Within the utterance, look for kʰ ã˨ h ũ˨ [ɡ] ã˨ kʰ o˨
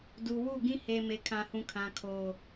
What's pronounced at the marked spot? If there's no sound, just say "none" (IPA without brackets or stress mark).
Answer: kʰ